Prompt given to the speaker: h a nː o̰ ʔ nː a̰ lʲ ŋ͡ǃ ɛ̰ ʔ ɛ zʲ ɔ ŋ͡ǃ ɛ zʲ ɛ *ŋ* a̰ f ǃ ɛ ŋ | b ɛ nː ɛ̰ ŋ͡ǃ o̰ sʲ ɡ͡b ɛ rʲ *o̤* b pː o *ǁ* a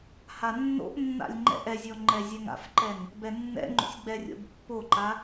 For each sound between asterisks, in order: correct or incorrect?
correct, incorrect, incorrect

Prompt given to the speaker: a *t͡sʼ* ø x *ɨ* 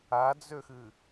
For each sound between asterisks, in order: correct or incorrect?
incorrect, correct

